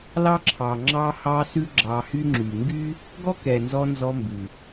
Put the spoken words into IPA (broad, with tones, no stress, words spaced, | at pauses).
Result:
lɑ˦ǁʰɑ˨ ŋ͡ǁɑ˦hɑ˦sʉ˦ ɡ͡ǁɑ˧ hy˦ŋ͡ǁy˨ ŋɡy˦ | ɡɔ˦kɛ˨nzɔ˧ nzɔ˧ mbʉ˨